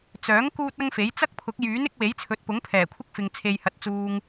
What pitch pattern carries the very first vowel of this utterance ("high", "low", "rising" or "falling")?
rising